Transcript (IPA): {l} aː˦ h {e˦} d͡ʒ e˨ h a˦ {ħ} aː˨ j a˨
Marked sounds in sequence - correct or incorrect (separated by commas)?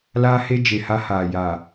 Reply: correct, correct, incorrect